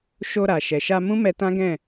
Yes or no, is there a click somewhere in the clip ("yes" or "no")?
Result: no